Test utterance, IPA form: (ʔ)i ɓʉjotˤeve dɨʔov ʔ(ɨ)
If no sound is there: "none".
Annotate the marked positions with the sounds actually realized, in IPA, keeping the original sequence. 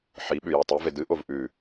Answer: ħ, ʉ

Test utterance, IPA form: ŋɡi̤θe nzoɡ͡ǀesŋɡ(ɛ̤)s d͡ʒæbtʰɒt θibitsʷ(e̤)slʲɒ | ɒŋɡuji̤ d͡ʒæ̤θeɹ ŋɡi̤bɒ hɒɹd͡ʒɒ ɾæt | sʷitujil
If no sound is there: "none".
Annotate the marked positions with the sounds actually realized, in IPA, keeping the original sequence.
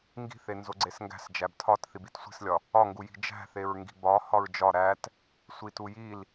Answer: æ̤, i̤

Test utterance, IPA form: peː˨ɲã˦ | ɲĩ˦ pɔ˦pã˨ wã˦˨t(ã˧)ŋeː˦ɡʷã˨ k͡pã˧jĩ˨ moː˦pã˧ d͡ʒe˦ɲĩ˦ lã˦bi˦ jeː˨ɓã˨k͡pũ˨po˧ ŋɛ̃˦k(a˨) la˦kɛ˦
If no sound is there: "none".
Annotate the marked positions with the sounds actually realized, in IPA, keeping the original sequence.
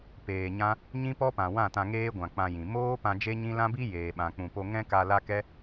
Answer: ã˧, a˧

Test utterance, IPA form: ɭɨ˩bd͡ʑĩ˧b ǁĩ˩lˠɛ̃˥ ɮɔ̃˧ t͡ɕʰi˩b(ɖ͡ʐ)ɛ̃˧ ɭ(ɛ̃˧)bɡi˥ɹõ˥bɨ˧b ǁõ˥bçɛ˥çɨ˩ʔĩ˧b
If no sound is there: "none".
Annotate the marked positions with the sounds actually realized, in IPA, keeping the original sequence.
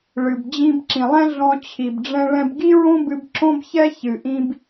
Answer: ɖ͡ʐ, ɛ̃˧

